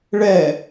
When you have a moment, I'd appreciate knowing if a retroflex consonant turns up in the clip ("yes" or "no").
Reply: yes